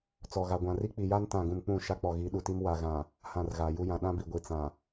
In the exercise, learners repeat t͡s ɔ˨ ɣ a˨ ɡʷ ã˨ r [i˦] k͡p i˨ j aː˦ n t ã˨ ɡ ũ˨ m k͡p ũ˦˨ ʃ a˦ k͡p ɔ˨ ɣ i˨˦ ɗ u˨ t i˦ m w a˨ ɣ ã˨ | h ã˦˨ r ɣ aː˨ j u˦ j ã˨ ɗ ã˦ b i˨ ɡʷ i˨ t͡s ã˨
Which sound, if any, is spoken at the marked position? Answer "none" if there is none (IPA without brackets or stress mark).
i˦